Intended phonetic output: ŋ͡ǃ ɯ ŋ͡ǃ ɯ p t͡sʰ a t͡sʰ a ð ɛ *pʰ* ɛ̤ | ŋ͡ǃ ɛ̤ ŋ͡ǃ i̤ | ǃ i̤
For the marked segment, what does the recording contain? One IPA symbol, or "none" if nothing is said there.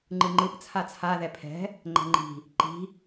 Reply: pʰ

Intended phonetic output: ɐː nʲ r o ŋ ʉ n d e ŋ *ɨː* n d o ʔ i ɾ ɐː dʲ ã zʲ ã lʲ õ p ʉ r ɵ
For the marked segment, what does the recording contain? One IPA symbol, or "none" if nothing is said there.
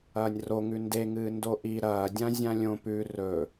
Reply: ɨː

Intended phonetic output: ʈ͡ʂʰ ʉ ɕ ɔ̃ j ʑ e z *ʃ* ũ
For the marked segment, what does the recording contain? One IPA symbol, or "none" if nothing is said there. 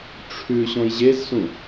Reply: s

